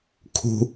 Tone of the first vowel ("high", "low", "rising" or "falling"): high